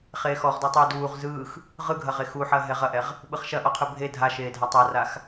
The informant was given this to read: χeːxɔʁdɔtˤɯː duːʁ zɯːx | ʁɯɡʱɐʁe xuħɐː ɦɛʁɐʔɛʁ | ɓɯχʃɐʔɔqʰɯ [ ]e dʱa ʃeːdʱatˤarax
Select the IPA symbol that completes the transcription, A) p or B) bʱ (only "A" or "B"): B